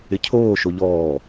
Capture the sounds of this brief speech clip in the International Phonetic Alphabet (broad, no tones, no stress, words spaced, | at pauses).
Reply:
ɪcʰoː ʃoʎɔː